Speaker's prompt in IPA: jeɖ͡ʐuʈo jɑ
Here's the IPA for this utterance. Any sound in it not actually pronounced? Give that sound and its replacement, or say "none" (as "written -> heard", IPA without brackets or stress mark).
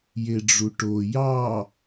none